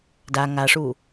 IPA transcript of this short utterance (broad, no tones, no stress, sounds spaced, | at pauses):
d a ŋ a ʂ u